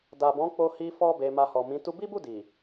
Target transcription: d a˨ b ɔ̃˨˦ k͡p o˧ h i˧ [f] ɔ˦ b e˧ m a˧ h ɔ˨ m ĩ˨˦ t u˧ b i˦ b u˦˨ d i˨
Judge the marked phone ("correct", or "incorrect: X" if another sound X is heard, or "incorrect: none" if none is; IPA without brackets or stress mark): correct